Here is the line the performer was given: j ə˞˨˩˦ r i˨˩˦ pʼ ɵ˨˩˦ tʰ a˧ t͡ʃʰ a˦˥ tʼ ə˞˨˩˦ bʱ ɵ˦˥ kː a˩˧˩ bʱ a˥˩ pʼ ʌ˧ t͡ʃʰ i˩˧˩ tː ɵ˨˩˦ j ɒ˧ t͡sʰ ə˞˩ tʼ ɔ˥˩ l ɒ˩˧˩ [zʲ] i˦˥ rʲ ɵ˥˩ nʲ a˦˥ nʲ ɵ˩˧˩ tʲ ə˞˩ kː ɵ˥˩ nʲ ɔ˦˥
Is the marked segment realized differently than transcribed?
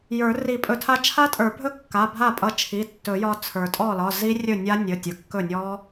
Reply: yes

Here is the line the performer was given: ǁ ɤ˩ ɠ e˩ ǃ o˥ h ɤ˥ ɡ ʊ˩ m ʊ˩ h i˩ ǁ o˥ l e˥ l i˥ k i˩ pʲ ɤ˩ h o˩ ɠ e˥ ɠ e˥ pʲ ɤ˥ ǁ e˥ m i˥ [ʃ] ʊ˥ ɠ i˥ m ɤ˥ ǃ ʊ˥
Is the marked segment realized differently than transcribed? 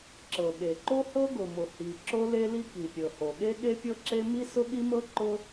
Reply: yes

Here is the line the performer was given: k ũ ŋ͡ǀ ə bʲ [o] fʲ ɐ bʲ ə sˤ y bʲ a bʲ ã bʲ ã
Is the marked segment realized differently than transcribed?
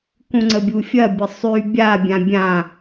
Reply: yes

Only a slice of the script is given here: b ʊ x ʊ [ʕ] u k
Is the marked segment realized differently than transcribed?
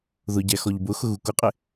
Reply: yes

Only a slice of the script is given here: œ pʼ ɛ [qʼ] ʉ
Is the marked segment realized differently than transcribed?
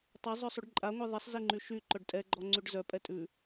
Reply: yes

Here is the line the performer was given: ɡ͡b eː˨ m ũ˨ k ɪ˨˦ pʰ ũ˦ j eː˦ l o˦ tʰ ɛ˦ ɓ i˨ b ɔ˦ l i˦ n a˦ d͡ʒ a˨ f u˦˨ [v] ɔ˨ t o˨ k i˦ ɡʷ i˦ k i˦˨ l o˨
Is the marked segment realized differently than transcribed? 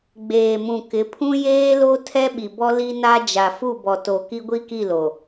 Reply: yes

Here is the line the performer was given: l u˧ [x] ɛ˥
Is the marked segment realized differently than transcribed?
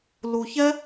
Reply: yes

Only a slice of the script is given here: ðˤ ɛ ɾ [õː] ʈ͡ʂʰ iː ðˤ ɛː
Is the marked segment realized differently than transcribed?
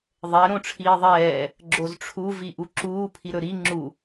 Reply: yes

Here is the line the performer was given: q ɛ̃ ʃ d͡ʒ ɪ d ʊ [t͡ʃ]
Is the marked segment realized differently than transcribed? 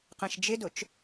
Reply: no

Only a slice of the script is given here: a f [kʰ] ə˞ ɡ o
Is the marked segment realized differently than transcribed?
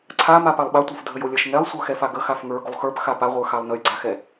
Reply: yes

